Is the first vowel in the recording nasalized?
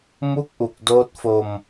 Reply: no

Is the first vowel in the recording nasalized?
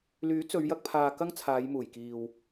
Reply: no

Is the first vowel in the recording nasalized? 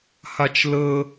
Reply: no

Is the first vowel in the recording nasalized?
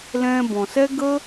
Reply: yes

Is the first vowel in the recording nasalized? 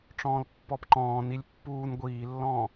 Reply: yes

